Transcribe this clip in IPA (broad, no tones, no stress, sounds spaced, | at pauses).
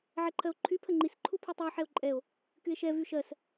ʕ ɛ ǃʰ ɜ o̯ ǃʰ y pʰ ə ŋ͡ǃ i s ǃʰ u pʰ y tˤ i o̯ ħ ɛ o̯ ǃʼ ɛ o̯ | k y e̯ ʃ ɛ v y ʃ ɜ s